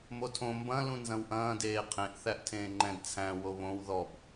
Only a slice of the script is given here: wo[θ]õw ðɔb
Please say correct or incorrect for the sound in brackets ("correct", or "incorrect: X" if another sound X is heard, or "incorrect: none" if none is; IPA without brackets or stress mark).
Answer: incorrect: β